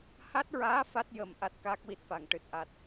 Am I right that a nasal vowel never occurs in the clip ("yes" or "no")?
yes